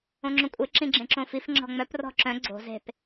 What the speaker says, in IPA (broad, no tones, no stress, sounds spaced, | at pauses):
õ ŋ͡ǁ õ kʷʼ e ǁ ĩ ɡ͡ǁ ẽ ǁ õ f i f ŋ͡ǁ ɔ̤ ŋ͡m œ p r ɔ̤ ǁ œ̃ ɡ͡ǀ o̤ z e̤ p